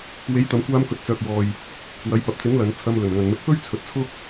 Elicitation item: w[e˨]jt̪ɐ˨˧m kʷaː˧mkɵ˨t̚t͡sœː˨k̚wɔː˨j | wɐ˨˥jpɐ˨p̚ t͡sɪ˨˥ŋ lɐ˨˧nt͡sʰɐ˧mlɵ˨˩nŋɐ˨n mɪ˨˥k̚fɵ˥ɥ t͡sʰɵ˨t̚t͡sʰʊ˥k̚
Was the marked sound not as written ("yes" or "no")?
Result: yes